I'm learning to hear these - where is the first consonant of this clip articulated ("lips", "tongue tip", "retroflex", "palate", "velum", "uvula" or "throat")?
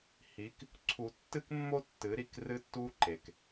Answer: throat